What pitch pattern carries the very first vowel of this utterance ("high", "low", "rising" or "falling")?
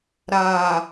low